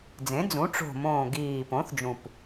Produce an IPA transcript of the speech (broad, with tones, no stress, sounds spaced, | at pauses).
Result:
d͡z ẽ˩˥ d͡z ũ˩˥ ʈ͡ʂ o̤˨˩ m õː˨˩ ɡ iː˨˩ p õ˩˥ θ d͡ʒ ũ˨˩ p